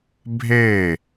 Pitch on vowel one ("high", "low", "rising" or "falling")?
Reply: falling